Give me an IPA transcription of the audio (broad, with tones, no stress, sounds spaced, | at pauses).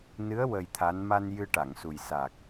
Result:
n ɨ˧˥ ə̯ w ə˧ j t̪ʰ a˧˥ n m a˧ n j ɨ˧ ʈ a˨˩˨ ŋ s u˨˩ j s a˨˩ k̚